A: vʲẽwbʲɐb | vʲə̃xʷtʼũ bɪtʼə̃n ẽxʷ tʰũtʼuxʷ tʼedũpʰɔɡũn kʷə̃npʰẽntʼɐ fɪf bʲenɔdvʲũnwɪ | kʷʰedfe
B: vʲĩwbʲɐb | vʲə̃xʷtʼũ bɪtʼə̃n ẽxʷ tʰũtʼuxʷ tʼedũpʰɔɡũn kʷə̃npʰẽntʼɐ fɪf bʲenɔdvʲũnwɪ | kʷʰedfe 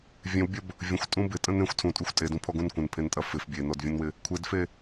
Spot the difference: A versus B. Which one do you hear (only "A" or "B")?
A